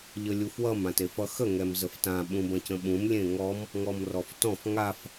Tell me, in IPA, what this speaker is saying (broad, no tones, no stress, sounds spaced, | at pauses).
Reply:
ʎ ə lʲ u f w ʌ m ã t e f ʌ x ə ŋ ɛ m z ə f t ã ɓ ũ b ɐ̃ c ə̃ ɓ ũ m lʲ ẽ ŋ ɔ m | ŋ ɔ m r ɔ f t ɔ̃ f ŋ a f